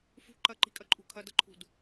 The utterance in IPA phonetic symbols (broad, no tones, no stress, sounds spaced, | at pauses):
f ṳ ǃ ɐ ǃ i̤ kʼ ɐ ǃʼ ṳ kʰ ɐ d ɐ ǃʰ ṳ d